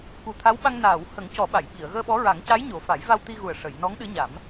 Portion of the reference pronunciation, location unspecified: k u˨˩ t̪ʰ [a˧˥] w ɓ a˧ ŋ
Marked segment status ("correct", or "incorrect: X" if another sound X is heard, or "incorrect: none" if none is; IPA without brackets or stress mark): correct